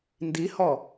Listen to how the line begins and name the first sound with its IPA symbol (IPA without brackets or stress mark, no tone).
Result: n